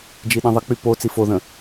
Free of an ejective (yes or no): yes